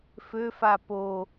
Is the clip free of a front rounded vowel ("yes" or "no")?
no